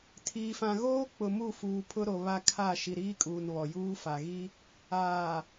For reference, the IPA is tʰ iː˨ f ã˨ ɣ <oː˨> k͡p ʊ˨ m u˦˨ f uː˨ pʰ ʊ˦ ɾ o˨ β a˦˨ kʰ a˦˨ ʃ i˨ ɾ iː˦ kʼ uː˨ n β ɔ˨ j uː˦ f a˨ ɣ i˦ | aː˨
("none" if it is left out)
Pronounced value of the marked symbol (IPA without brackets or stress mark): oː˦